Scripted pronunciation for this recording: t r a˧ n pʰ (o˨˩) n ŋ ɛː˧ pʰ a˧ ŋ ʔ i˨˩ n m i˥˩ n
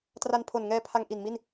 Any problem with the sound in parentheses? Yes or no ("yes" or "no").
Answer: no